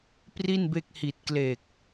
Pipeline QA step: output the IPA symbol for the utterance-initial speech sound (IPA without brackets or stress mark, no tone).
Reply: p